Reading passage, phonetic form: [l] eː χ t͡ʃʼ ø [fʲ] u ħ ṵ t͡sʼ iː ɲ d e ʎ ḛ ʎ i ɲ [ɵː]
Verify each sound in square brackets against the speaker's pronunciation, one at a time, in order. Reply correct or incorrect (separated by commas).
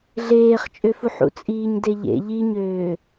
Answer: incorrect, incorrect, incorrect